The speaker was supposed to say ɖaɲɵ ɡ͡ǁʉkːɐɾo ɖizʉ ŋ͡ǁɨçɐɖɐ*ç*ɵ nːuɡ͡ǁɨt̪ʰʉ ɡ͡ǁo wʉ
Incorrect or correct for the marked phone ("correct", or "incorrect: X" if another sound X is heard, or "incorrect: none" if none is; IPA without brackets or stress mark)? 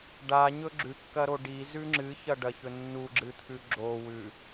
correct